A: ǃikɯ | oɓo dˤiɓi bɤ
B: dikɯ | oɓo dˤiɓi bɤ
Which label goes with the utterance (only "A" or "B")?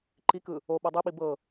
A